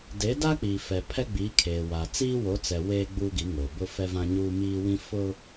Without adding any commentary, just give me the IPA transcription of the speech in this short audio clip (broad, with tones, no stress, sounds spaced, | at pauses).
d e˨˦ d a˦ k͡p iː˨ f ɛ˨ pʰ ɛ˦ ɡ͡b iː˨˦ kʰ eː˨ w a˨ t͡s iː˦ w o˨˦ t͡s ɛ˨ w eː˦ ɡ͡b uː˦ ɡ i˨˦ ŋ o˨ b ʊ˦ f ɛ˦ v ã˦ ɲ uː˦ m iː˦ w ĩ˦ f ʊ˦